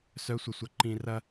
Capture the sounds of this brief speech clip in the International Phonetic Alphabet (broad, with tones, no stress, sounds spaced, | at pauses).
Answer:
s œ˨˦ sʷ ə˨ sʷ ɐ˨ ǃ ĩ˨ r ɐ˦